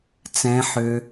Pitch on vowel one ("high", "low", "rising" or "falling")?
high